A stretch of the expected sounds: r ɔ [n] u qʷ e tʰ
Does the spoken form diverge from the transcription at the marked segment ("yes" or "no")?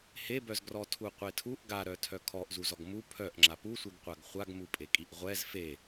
yes